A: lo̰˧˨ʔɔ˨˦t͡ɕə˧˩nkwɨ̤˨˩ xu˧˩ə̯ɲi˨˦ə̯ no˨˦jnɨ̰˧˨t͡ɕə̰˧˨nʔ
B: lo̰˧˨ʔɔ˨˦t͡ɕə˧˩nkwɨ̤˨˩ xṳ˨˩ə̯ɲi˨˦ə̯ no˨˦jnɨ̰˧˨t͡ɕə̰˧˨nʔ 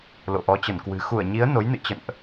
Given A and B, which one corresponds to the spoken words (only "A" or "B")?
A